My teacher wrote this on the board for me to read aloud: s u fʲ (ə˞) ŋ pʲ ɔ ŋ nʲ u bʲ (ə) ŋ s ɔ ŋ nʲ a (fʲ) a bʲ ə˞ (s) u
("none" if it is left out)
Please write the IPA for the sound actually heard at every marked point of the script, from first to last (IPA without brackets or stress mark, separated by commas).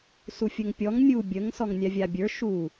ə, ə, vʲ, ʃ